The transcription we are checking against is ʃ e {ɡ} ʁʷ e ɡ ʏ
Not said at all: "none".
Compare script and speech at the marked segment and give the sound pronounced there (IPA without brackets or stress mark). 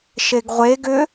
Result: ɡ